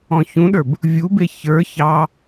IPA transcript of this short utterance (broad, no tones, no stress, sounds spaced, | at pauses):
ɔ̃ ç ũ ɗ ə˞ b | vʲ u b e ç ə˞ ç ɑ